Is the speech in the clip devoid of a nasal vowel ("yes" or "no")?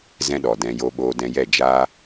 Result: no